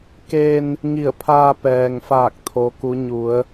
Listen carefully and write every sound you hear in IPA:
keː˧n | ŋi˧˩ə̯pʰaː˧ pɛː˩ŋfaː˧˩k̚ t̪ʰo˧˥ku˧˥ ɲu˩˧ə̯

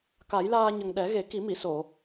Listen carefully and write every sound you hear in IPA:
ka˨˩˦jlaː˧ɲə˨˩ŋ ɗɛ˨˩˦ɣe˨˩˦ ki˨˩˦mi˨˩˨so˨˩˨

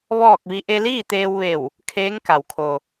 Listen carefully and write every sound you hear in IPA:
ʋɔː˥˨k̚ʋi˧˥ ʔe˧liː˥˨t̪eː˧wʋe˧˩w | kʰeː˧˥ŋka˩wkʰo˩

